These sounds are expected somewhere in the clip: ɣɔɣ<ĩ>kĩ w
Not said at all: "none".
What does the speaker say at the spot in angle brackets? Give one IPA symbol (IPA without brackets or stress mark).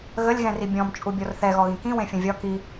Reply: ĩ